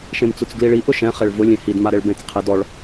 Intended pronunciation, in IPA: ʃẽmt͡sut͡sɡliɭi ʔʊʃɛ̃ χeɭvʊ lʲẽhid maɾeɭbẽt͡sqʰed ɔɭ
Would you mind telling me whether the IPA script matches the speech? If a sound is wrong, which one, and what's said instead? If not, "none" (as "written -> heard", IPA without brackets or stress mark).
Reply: none